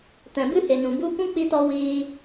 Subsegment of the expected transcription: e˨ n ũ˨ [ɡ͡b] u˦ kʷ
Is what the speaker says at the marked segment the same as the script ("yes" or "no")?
no